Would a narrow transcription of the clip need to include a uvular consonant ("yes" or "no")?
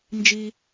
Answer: no